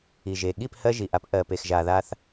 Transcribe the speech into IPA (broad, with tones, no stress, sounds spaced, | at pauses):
i˨ ʒ e˨ ɠ i˦˨ p h ɜ˦ ʒ i˨ ʔ a˦ p ʔ ɜ˨ p e˨ x ʒ a˨ ð a˦ θ